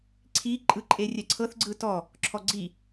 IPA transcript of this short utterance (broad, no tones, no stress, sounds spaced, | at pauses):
ǀʰ i ǃʼ ɯ ǃʼ e rʲ ɛ ǀʰ ɤ θ ɡ͡ǀ ɯ t ɔ | ǁʰ ɔ ɡ͡ǀ i